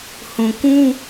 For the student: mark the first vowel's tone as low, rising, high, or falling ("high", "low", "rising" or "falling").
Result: low